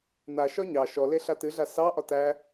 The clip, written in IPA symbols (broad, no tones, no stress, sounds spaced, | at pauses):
n̪ a ʃ ɒ ɲ ɑ ʃ ɔ l e ɬ a t ɨ ɮ a s ɑ ʔ ɒ t æ